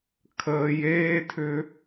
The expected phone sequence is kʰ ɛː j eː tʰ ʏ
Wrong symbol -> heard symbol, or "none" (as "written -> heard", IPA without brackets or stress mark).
ɛː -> əː